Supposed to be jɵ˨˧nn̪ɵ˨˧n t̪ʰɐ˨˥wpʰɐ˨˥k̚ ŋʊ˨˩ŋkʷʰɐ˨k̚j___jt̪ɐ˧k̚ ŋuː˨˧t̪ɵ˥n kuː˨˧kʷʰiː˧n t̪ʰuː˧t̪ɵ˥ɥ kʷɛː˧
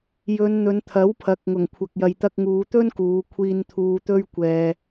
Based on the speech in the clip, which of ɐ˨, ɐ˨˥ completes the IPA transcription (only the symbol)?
ɐ˨